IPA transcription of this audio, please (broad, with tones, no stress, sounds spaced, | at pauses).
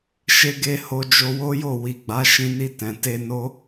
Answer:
ʃ e˦ ɡ e˦ h o˧ d͡ʒ o˧ w o˦ j o˦˨ w i˨ ɡ͡b a˨˦ ʃ ĩ˧ n i˧ t ɛ̃˨ t e˧ n o˦